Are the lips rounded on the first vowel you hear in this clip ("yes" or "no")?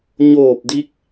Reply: yes